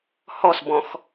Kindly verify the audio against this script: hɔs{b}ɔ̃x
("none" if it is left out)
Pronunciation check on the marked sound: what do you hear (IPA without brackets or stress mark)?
b